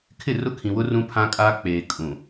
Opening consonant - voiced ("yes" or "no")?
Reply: no